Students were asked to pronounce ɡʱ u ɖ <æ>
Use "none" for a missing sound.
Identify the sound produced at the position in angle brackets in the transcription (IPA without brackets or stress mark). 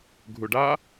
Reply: a